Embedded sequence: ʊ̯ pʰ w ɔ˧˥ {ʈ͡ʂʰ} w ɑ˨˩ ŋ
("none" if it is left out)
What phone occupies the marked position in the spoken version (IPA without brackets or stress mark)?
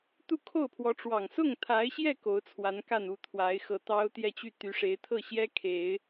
ʈ͡ʂ